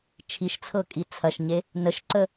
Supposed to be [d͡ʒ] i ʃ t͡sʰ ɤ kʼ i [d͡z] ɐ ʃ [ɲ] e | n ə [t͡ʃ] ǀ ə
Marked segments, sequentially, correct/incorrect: incorrect, incorrect, correct, incorrect

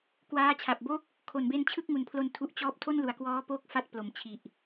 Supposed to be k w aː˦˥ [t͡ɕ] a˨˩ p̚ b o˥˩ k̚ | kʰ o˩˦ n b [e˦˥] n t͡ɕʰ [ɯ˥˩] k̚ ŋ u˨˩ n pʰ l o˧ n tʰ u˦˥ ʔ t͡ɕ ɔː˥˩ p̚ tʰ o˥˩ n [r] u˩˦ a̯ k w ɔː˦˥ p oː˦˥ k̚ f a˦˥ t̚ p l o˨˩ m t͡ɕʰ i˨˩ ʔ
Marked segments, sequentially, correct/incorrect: incorrect, correct, correct, incorrect

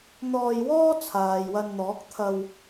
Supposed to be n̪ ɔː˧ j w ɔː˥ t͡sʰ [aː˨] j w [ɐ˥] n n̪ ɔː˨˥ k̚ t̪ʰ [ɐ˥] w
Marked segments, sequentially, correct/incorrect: correct, incorrect, incorrect

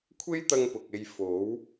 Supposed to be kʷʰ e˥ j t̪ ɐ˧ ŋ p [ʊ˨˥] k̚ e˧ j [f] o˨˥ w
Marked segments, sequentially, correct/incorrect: incorrect, correct

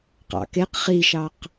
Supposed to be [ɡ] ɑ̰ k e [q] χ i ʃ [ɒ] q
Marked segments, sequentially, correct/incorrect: incorrect, correct, incorrect

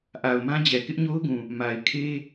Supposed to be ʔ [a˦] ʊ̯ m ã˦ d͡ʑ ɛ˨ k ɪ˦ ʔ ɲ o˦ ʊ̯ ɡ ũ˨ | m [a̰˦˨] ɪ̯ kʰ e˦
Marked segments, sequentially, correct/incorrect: incorrect, incorrect

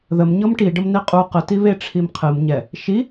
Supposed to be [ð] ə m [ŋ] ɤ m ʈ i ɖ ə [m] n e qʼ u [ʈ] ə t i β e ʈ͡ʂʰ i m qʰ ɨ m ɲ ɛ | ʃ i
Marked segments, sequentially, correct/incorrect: correct, incorrect, correct, incorrect

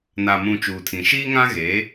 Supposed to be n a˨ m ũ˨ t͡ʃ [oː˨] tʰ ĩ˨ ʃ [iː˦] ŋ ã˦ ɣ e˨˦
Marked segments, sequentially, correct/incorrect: incorrect, correct

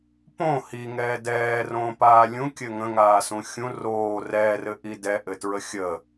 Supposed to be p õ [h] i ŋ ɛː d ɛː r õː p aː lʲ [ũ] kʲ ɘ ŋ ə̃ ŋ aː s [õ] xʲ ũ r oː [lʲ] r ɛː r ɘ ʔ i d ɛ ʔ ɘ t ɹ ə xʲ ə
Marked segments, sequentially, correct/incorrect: correct, correct, incorrect, incorrect

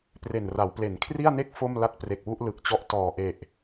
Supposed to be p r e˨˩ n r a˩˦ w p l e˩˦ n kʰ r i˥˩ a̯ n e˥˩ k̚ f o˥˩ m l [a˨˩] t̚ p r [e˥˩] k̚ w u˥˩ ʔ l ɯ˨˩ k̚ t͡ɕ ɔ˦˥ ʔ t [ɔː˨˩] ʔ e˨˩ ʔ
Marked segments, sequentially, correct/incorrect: incorrect, incorrect, correct

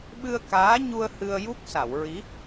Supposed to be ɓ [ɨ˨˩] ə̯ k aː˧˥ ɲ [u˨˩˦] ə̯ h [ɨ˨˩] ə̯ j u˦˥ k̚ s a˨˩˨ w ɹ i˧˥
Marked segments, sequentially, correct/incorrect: incorrect, incorrect, incorrect

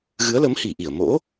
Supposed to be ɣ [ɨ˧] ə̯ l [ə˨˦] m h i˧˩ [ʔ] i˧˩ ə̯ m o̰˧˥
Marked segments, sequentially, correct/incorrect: incorrect, correct, correct

